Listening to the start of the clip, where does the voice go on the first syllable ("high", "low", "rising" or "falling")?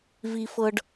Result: low